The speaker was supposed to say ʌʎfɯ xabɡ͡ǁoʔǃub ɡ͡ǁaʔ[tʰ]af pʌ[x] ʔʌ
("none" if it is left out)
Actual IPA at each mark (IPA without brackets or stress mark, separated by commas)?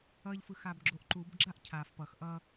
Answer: cʰ, x